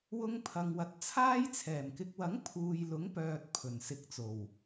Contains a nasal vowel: no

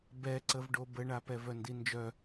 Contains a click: yes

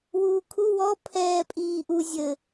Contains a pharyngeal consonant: no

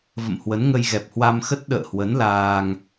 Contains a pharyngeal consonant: no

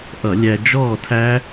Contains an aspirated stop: yes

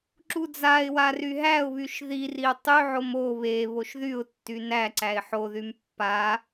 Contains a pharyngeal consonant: yes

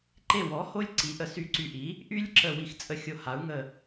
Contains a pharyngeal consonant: no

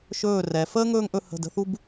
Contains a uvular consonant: no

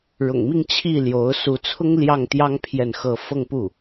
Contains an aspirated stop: yes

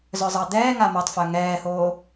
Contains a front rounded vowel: yes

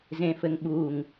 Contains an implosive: yes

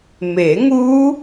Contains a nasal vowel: no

